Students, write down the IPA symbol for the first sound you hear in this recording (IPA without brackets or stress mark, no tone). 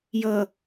j